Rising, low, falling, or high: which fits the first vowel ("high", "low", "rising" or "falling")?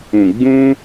low